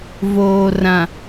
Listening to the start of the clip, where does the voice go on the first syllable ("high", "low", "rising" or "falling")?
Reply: low